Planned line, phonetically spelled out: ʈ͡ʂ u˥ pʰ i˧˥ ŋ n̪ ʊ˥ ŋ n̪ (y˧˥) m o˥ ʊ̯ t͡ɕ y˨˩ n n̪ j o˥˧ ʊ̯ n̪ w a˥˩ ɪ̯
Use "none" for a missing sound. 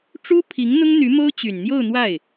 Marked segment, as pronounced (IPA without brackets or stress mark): y˧˥